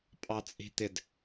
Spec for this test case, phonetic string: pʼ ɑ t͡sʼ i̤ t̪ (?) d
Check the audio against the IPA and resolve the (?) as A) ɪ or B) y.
A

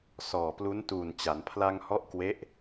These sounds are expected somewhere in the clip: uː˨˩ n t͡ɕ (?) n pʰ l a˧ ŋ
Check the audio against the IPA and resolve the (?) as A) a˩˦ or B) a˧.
A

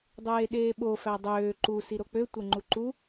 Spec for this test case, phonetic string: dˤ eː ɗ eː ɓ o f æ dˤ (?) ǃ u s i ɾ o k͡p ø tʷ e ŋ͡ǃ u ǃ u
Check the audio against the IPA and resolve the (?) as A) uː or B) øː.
B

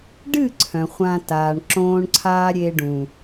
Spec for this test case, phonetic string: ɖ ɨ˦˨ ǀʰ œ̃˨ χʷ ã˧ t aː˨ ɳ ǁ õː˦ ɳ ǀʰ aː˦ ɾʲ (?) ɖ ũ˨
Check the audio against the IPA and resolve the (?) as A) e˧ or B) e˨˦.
A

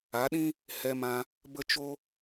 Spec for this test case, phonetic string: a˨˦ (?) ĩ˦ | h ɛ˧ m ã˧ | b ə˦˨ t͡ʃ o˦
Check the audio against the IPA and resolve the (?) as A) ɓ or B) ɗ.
B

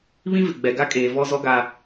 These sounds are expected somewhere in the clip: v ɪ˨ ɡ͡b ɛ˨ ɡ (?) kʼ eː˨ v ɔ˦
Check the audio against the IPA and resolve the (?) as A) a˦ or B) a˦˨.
A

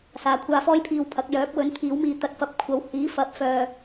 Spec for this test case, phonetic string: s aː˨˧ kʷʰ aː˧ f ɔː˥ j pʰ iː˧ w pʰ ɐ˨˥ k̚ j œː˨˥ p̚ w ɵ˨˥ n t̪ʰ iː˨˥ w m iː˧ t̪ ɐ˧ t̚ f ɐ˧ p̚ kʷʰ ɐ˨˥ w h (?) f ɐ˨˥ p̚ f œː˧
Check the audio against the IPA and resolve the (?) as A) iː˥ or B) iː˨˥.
B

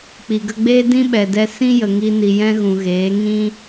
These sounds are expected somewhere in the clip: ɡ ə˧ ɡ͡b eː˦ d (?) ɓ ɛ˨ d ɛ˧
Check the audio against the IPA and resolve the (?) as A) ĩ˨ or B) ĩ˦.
B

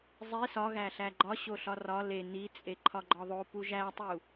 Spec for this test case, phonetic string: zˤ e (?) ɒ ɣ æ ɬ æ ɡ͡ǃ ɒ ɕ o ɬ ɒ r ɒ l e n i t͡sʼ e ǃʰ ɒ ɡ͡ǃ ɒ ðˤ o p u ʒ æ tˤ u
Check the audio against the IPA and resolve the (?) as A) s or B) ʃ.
A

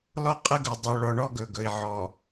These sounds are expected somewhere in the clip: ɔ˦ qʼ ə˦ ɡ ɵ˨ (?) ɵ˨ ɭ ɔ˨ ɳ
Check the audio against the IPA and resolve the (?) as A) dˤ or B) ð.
A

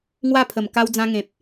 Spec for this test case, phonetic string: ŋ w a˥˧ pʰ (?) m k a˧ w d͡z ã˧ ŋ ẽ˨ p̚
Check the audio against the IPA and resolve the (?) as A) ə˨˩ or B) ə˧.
A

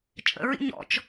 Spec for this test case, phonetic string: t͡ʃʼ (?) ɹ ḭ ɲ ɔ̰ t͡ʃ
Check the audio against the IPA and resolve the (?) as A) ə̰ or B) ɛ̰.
A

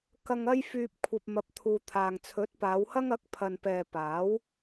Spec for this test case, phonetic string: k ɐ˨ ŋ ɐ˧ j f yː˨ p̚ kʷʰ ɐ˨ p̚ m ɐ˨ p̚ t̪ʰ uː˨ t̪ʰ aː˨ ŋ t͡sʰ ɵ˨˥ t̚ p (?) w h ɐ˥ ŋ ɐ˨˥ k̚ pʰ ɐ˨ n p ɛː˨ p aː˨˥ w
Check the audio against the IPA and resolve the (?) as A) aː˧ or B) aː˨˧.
B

